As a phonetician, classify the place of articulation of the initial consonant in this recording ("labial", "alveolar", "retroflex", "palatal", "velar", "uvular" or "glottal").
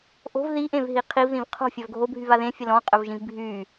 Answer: glottal